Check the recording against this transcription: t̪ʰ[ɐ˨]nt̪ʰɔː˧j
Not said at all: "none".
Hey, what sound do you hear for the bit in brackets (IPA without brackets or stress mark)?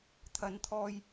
ɐ˨